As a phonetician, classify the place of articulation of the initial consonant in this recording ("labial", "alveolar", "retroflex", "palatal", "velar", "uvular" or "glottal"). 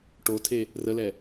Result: retroflex